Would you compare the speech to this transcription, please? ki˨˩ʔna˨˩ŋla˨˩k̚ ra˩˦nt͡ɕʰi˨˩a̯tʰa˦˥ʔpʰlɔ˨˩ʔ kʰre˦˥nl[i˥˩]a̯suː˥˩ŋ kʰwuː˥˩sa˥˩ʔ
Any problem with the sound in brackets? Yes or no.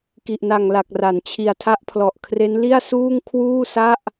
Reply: no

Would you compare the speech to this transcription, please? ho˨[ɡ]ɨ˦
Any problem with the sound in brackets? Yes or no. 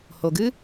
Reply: no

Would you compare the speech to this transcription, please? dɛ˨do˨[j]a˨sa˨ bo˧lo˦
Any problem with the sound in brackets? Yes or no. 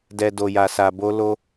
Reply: no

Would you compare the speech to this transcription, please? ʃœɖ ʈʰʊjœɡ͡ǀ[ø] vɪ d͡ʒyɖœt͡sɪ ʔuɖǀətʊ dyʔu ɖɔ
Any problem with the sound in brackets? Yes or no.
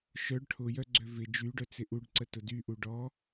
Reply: no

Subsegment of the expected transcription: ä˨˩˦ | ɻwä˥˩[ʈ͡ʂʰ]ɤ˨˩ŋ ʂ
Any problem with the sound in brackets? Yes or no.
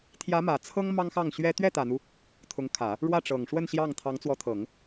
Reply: yes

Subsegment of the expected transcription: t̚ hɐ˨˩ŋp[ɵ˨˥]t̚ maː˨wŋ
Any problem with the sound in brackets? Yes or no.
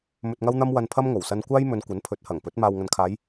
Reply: no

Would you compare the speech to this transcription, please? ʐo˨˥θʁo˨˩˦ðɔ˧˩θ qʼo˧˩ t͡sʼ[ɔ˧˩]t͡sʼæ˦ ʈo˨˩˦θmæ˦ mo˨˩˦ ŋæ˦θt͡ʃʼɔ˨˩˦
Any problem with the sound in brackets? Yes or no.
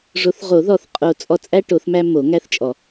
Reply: no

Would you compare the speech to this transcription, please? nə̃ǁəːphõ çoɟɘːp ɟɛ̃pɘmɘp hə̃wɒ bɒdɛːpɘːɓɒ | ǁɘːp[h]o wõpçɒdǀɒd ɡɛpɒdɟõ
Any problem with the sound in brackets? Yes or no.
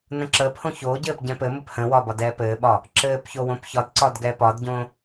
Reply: yes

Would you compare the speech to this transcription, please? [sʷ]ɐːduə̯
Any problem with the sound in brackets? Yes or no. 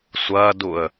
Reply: no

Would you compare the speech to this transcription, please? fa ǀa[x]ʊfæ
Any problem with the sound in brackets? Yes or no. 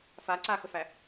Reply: no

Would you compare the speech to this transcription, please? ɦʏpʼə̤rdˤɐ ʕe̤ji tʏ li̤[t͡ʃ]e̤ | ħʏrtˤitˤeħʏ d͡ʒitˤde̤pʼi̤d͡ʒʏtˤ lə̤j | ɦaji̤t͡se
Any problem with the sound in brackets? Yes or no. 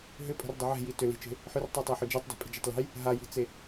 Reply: no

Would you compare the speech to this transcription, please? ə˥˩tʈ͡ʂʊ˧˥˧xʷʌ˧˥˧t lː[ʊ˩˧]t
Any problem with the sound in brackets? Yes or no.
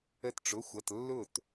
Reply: yes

